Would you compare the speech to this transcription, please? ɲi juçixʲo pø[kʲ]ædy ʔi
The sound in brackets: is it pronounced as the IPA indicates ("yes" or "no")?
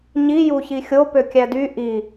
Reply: yes